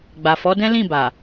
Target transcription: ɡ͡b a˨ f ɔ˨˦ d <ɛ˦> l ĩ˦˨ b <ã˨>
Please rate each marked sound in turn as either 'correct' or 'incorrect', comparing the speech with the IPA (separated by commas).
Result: incorrect, incorrect